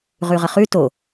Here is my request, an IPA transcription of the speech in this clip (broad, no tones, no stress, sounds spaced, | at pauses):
ʁ ʉ ʁ ə χ ʉ t o